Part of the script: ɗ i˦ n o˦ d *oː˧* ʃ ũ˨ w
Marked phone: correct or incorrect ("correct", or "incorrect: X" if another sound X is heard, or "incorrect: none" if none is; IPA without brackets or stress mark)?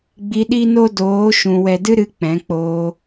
incorrect: oː˨˦